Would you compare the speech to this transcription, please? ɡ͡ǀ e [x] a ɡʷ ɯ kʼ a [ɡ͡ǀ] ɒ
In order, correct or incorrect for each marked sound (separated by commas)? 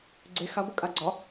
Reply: correct, correct